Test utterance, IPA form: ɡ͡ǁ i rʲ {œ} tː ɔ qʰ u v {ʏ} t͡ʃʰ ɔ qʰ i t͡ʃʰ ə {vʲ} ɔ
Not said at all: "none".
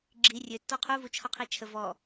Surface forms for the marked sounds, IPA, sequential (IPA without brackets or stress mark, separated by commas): ø, u, v